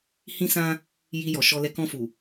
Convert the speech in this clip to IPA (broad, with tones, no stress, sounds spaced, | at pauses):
h ĩ˦ s ã˦ | j i˧ j ɔ˨ ʃ ɔ˧ l ɛ˧ k ɔ̃˧ f u˨